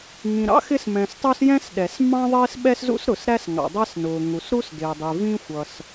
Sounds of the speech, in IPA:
ŋ ĩ˩ ɾ ɑ̰˥ x ɪ˥ s m ɛ̃˩ s tˤ u˥ s j ɛ̃˥ s ɗ ɛ˩ s m ɑ̃˥ ðˤ ɪː˥ s ɓ ɛ˥ s z ṵ˥ s ɾ ʊ˩ s ɾ æ˥ s ŋ ɑ̰˩ dˤ æ˥ s n ʊː˩ ŋ u˩ s ɾ u˥ s d ɪː˩ dˤ i˩ v ĩ˥ xʷ ʌ˩ s

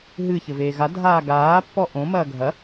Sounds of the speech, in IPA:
ɦ ɨ ç ɘ v eː ɣ a dʱ aː ɡ aː pː ɔ ʔ õ m ɐː ɡʱ ɐ

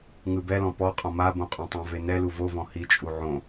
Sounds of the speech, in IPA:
ŋ ɯ b ɛ l ɔ̃ p ɔ qʼ ɔ̃ m a b õ qʼ õ tˤ õ v e n ɛ l u v o v ɔ̃ h i t͡ʃʼ u ʕ õ

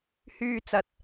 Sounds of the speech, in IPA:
h yː˧ t͡s ɐ˨ t̚

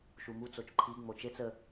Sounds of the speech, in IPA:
ʃ u m u t͡s o t͡ʃ ǃʰ i ŋ͡m o t͡ʃ e t͡s ə

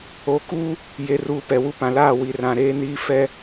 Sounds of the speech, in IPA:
o˨˦ k uː˦ | j e˨ r uː˨ p ɛ˨ w u˦ p ã˨ l aː˦˨ w i˨ r ã˨ ɾ eː˦ n iː˦ f ɛ˦

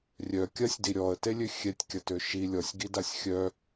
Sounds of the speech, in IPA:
rʲ œ kʲ ɐ sʲ d i ɾʲ ɔ ə̯ t e lʲ ø xʲ ɛ tʲ kʲ ɐ t ø ʃ i lʲ ɔ sʲ ɡ i d a sʲ xʲ œ

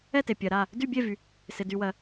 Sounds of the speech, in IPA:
ɛ˥˨ t e˨ pʲ ɜ˨ ɾ a˥˨ | d y˥˨ bʲ e˥˨ v y˨ | s ɪ˨ d y˨ w ɜ˨

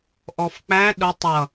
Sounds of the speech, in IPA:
ʔ ɔ f k͡p æ ɗ ʊ tˤ ʌ

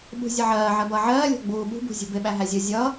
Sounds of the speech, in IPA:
ɓ ṳ zʲ ʌ ʕ ɜː ʕ ɜ b ʌː ʕ ɜː lʲ ɔ̤ ɡ͡b uː ɓ ṳ b ṳ zʲ ṳ b ɪ ɓ æ ɦ æ zʲ ʊ zʲ ʌː

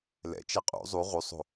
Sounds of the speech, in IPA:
l ɛ̰ t͡ʃ ɛ qʼ ṵ zˤ u ʁ u sˤ o̤

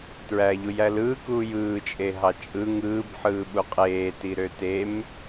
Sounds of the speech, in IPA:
t ɹ æː ʎ u j æ l ɯː k uː j ɯː t͡ʃʼ e ɦ ɑ t͡ʃʼ ɯ ŋ ɯː b ħ ɯː ɓ u qʼ eː t i ɾ ø t e m

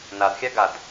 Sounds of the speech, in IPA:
n a d xʲ a ɡ a d

